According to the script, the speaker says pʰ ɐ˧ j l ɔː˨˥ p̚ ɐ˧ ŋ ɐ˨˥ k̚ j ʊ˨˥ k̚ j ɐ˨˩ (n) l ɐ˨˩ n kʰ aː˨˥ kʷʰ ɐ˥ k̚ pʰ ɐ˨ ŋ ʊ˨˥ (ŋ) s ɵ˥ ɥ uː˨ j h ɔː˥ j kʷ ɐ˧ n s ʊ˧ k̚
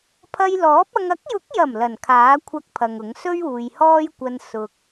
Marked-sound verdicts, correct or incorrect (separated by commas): incorrect, correct